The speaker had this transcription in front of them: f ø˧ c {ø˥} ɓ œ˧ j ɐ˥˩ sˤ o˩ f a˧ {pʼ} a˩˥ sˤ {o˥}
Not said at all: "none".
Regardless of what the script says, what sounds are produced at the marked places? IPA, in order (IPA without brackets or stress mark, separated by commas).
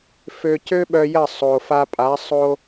ø˥, pʼ, o˧